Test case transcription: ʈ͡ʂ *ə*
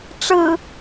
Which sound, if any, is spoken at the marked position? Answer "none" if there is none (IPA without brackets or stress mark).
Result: ɯ